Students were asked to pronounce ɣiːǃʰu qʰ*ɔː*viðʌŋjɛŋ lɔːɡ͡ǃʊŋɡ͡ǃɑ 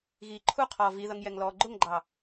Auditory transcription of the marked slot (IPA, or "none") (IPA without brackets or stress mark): ɔː